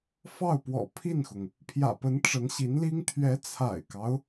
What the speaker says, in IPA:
f ɑ˥˩ ʊ̯ p w ɔ̰˨˩ pʰ i˥˩ n x ʊ˩ ŋ | pʰ j ä̰˨˩ p ə˧˥ n ʈ͡ʂ ə˧˥ n ɕ i˧˥ n l i˥ ŋ t̪ʰ ɥ ɛ˧˥ t͡sʰ a̰˨˩ ɪ̯ k ɑ˦ ʊ̯

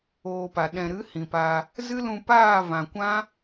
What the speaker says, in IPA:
oː˧ p a˨ ɗ ɛ̃˨ ɾ ɨ˨˦ h ĩ˨ p a˧ | z ɨ˦ l ũ˧ p aː˦˨ v ã˨ kʷ ã˦

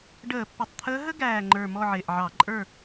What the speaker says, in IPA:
ɖ əː˧˩˧ pː ɪ˨˩ tˤ t̪ʰ əː˧˥ ɦ ə˥ ɡ æː˨˩ ŋ͡ǃ ə˞˨˩ m ɔ˦˨ ʕ ɪː˨˩ ʔ ʕ ɑ˧˩˧ ǃʼ ə˞˦˨

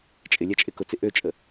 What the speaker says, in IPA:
t͡ʃʼ ɪ lʲ ɛ t͡ʃʼ ɪ k ʊ t͡s ɪ ʔ ø t͡ʃʼ ə

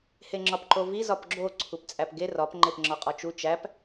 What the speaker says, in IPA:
h e ŋ͡ǁ ɒ p ǃ o v i z ɒ p ɡ͡ǁ o ǀʰ u p t͡sʼ æ p ɡ e r ɒ p ŋ͡ǃ e p ŋ͡ǁ ɒ qʼ ɒ t͡ʃ u t͡ʃ æ p

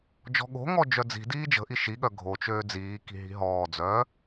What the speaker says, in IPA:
d͡ʒ ɔ̤ ɠ o̤ ŋ ɔ d͡ʒ œ d͡z i̤ d iː d͡ʒ ə̤ ʔ i ʃ i ɠ œ ɡʱ o t͡ʃ øː d͡z iː k i̤ ɦ i̤ ɦ ɔː d͡z œː

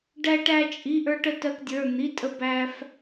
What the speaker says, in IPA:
ɖ æ˥ ʈ æ˥ t͡ʃʼ i˧˥˧ ʔ ə˞˥ ʈ ə˥ t ɜ˥ k dʲ ə˞˧˥˧ n̪ i˧˥˧ tʼ ə˥ b æ˥ f

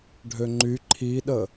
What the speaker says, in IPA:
ɖʱ ø ŋ͡ǃ y ǃʰ i ɗ ə

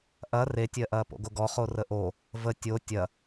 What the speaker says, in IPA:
ʔ ɐ r e tʲ ɜ ʔ ɐː p o̰ ɡ o ɡ ɔ χ o r ə ʔ o | v ə tʲ o tʲ ɐ

